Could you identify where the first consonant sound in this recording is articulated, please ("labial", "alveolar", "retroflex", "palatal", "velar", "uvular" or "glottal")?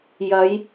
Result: palatal